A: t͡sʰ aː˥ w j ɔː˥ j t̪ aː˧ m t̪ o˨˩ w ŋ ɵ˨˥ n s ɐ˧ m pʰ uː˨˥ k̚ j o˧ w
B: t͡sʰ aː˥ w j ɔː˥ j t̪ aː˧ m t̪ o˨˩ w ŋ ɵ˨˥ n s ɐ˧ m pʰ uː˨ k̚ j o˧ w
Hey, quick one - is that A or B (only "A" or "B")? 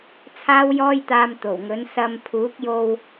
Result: A